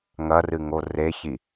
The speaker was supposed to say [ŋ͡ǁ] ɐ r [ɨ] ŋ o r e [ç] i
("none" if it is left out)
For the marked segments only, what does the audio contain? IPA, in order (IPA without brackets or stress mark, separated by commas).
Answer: ŋ, ɨ, ç